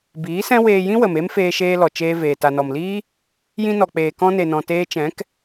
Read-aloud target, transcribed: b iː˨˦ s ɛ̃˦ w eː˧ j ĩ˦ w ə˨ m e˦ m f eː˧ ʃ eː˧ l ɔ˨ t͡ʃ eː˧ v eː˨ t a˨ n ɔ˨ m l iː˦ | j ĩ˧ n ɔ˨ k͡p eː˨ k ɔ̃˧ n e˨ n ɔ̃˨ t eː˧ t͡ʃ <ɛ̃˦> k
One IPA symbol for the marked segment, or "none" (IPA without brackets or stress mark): ɛ̃˨˦